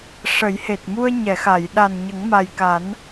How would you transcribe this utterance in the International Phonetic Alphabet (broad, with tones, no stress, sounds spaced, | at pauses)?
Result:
ʂ ə˨˩˦ j h e˨˩ t̚ m u˧ ə̯ ɲ ɛ˨˩˨ x a˨˩˨ j ɗ a˨˩ n ɲ ə˨˩˦ ŋ m a˨˩ j k a˨˩˦ n